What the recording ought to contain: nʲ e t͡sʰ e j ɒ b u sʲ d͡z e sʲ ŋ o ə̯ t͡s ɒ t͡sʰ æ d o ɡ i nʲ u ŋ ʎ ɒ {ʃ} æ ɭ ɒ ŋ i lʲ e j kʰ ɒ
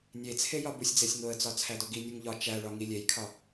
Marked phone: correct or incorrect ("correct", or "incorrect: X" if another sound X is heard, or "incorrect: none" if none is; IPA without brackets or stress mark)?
incorrect: t͡ʃ